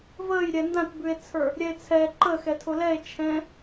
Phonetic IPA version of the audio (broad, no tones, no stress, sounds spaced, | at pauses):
v əː j ɾʲ ɛ n d ã t b ʉ e̯ t͡sʰ ə˞ | ɾʲ ɛ e̯ t͡sʰ ɛ ǃ ə x ɛ tʰ ʊ l ɛ e̯ t͡ʃʰ ɛ̃